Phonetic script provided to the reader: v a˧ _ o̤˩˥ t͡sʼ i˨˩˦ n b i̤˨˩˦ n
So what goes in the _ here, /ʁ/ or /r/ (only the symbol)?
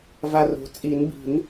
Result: r